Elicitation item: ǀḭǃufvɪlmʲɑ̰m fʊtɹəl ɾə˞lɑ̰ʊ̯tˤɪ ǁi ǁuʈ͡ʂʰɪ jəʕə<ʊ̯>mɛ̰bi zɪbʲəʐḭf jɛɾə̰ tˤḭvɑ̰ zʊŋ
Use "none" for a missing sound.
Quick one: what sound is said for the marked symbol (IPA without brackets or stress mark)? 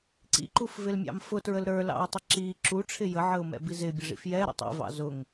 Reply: ʊ̯